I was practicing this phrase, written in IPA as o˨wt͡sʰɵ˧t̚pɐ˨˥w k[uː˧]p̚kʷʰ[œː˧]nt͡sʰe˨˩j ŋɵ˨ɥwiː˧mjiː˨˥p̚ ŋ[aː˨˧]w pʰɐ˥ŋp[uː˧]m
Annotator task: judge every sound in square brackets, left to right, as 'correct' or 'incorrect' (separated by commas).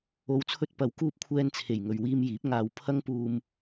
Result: correct, incorrect, correct, correct